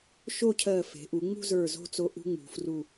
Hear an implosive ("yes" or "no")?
no